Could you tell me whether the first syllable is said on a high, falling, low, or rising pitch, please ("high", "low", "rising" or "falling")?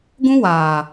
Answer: high